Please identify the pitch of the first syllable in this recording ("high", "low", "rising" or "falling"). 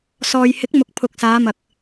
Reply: low